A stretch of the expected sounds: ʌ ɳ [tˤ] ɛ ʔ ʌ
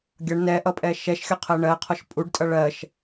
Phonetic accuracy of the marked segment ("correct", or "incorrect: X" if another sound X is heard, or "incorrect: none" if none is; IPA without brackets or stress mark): incorrect: n